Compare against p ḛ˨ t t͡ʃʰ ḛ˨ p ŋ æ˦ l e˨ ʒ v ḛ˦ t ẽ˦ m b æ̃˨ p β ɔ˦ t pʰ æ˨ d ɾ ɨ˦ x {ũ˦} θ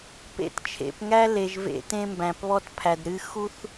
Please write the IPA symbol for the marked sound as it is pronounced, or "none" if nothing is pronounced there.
u˦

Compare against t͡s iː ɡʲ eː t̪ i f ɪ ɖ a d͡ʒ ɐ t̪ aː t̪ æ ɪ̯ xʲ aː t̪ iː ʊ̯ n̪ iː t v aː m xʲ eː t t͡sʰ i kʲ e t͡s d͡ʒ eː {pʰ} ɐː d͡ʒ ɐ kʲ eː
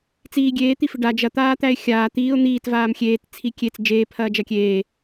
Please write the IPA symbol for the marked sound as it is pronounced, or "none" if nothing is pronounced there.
pʰ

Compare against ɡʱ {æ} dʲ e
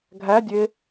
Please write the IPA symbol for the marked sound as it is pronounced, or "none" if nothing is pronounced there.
æ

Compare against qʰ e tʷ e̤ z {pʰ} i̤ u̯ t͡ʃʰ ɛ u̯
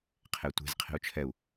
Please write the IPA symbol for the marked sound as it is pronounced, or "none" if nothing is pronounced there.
qʰ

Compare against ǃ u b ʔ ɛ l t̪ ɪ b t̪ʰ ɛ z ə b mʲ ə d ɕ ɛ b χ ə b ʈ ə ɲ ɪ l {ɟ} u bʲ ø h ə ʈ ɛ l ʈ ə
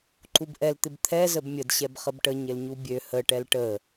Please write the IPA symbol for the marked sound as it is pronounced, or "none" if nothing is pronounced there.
ɲ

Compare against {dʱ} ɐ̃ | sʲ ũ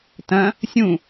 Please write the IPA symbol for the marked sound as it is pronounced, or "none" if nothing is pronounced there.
t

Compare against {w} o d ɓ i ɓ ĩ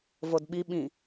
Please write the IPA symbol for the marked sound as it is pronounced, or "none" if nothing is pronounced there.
v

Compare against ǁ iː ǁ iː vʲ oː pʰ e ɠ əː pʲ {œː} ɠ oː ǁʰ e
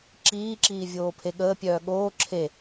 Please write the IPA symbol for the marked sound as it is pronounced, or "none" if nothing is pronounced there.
œː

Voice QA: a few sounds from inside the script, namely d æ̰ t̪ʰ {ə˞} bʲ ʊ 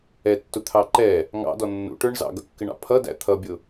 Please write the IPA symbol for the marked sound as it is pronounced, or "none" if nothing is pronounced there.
ʌ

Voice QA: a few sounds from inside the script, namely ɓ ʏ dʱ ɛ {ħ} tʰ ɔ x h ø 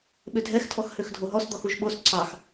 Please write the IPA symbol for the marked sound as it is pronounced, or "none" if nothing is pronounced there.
x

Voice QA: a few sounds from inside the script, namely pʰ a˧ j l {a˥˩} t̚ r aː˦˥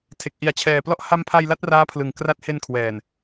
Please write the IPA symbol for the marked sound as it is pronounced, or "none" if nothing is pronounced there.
a˦˥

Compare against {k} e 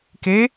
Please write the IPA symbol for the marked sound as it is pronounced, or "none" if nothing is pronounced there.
k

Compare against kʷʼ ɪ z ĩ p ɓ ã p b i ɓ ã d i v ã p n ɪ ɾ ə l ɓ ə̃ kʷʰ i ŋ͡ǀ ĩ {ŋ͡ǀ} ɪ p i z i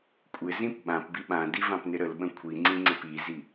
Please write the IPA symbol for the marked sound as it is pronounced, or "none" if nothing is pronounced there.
ŋ͡ǀ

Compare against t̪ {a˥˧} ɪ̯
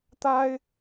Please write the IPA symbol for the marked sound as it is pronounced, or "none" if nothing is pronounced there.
a˥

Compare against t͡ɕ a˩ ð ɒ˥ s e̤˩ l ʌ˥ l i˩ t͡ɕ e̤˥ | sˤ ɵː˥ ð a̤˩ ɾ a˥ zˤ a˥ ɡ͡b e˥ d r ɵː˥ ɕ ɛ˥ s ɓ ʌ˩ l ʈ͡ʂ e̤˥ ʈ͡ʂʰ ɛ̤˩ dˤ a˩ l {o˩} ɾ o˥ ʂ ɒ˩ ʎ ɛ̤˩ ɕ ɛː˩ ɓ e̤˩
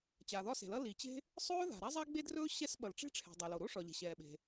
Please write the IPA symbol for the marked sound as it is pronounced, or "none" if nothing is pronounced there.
o˩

